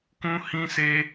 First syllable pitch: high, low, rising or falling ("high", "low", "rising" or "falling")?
high